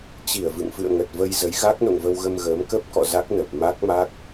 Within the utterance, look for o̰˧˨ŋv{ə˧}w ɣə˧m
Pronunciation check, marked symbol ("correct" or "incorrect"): correct